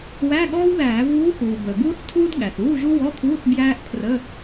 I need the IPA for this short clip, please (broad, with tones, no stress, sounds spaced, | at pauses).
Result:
w æ˧˥˧ ɠ ɔː˥ w ð æː˧˩˧ v uː˧˥ x uː˩ b əː˩ ɡ uː˥ θ tʰ uː˥ d ɠ æ˩ θ uː˧˥˧ ʒ u˥ w ɔ˧˥˧ kʰ uː˧˥˧ θ b j æː˥ ʔ pʰ r ə˧˥˧